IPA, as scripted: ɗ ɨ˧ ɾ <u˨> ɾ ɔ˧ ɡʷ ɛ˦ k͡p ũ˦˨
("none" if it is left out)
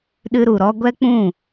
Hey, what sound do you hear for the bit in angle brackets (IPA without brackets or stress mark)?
u˨